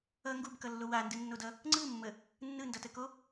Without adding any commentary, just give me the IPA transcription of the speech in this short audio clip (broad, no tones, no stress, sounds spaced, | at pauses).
ʌ ŋ ɡ u b k ʌ lː o w a n d ɯ nː o d ʌ | ŋ͡ǀ ɯ mː ə | nː ɯ n d ʌ t ə k o